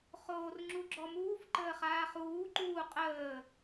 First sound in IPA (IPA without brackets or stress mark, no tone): χ